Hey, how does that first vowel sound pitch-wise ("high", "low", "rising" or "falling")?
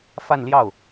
falling